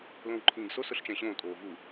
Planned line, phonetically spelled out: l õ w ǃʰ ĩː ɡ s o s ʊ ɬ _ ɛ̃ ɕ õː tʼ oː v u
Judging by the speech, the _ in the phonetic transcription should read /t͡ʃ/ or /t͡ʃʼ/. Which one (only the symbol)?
t͡ʃ